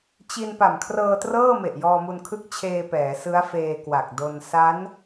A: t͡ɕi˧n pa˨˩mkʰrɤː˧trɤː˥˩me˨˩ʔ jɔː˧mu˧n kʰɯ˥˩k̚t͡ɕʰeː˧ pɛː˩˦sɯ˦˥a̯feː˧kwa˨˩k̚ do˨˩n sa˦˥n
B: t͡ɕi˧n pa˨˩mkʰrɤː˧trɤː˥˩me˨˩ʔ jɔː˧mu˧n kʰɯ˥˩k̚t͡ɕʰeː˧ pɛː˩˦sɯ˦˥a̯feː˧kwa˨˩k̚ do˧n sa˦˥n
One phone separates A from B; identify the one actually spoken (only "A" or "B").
B